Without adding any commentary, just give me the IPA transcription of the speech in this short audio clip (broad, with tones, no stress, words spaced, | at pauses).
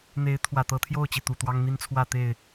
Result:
n̪e˨˦ɪ̯ t̪ʰwä˨˩t̪ɤ˨˦t̪ʰjo˥˨ʊ̯t͡ɕi˩ t̪u˨˩t̪wɑ˦ŋ n̪i˦nt͡sʰwä˥˨t̪e˥˨ɪ̯